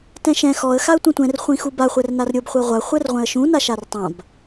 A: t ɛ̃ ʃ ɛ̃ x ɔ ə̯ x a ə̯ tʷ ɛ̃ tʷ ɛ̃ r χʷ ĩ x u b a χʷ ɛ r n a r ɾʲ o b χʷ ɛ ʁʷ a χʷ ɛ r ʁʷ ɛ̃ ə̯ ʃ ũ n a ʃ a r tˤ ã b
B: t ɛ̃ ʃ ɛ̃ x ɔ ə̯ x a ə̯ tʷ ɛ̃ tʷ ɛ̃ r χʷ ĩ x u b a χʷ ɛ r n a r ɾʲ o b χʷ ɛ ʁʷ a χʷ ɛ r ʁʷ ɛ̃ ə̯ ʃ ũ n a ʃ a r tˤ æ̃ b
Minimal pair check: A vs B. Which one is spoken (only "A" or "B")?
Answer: A